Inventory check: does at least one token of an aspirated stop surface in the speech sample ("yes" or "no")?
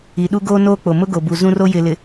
no